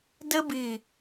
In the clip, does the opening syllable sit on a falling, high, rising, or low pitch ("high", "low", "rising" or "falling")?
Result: high